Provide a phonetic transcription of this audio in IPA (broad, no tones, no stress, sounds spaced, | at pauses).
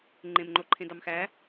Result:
ŋ͡ǃ ẽ m ŋ͡ǃ o ǃʰ ẽ d ɑ m x æ